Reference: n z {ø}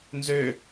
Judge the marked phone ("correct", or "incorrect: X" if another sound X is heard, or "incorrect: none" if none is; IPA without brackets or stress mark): correct